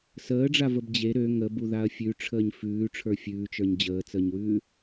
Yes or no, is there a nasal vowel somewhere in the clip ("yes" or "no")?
no